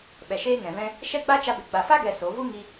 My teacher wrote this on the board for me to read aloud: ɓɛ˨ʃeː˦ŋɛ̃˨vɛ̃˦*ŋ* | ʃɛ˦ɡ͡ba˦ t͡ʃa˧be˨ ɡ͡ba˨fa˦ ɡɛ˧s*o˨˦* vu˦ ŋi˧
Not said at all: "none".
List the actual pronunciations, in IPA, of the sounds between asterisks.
none, o˨˦

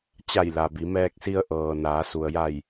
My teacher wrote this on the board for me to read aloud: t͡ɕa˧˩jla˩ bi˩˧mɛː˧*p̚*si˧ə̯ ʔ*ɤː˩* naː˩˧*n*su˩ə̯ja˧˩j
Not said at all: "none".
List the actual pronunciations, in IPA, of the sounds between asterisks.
k̚, ɤː˩, none

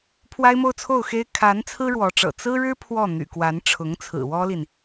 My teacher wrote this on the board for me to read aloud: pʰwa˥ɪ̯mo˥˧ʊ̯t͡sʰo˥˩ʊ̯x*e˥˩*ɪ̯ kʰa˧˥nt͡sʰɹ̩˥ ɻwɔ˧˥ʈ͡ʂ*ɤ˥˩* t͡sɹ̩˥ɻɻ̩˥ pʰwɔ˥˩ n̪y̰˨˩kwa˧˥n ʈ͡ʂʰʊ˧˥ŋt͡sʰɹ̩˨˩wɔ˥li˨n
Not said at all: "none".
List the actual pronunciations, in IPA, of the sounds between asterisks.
e˥, ɤ̰˨˩

